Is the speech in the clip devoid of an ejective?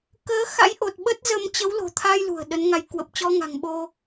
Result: yes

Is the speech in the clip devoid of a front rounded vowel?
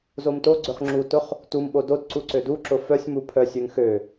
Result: no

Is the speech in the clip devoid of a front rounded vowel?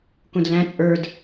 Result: yes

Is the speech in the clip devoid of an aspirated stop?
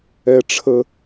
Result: no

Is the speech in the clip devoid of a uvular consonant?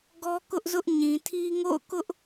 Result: yes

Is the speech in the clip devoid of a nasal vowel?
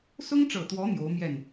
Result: yes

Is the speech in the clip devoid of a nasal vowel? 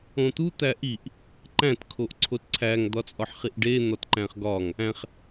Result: no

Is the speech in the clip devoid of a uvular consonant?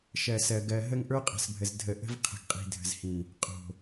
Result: no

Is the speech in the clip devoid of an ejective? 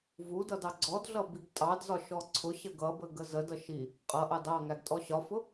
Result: no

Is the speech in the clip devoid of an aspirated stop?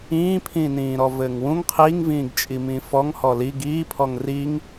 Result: no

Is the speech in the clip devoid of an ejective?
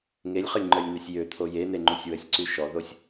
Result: yes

